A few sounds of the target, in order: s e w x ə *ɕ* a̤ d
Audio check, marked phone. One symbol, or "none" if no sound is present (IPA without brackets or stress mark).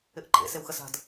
s